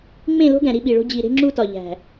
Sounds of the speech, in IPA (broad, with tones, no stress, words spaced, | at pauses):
ŋ͡mẽ˦˨lo̤˦ɡæ̃˨ ɾi˦ɓi˨ɭo̤˦ d͡ʑi˨ɾe̤˦ ŋ͡ǁu˦tɒ˨ʎæ̤˨